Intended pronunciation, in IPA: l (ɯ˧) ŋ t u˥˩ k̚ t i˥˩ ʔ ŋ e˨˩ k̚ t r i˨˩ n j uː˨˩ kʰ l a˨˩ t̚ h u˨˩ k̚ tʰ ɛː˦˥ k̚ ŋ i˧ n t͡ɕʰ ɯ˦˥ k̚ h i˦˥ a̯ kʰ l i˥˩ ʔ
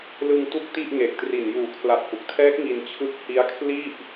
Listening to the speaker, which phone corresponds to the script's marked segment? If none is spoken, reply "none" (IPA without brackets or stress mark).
ɯ˧